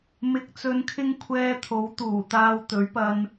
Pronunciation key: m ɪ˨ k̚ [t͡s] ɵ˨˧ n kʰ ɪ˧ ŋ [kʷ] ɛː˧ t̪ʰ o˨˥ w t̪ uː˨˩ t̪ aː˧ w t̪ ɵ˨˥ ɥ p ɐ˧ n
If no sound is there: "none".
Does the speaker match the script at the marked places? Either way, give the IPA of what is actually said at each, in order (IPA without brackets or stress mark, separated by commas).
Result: t͡s, kʷʰ